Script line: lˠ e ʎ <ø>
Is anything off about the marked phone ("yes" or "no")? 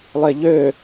no